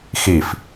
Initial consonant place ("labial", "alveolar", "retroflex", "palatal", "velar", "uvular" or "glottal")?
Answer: velar